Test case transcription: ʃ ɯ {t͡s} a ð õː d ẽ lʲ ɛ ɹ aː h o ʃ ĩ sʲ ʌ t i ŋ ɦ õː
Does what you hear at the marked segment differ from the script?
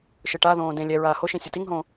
yes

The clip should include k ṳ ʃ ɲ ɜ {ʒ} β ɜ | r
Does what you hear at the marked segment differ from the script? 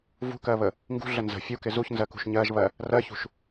no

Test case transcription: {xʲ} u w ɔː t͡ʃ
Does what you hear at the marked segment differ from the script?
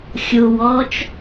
no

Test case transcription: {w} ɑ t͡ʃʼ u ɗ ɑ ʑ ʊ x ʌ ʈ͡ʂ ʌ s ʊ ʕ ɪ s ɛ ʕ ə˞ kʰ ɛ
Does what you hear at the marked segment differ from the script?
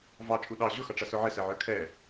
yes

